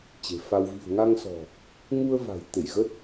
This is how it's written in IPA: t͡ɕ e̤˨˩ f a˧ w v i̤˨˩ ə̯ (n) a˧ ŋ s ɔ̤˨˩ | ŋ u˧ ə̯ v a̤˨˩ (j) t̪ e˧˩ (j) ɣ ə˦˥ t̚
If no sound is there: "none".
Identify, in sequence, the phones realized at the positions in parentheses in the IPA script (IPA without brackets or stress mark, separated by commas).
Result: ŋ, j, j